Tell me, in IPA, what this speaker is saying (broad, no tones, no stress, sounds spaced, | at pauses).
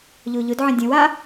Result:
ʎ o ʎ ʊ d ʕ ə̃ dʲ ə̃ w a